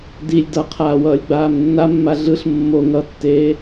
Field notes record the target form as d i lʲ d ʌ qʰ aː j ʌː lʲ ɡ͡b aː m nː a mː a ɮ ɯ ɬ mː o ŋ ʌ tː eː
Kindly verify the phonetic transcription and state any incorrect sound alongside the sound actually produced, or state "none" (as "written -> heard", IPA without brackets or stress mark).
j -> w